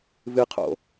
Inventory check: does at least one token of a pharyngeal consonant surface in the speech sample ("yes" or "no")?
no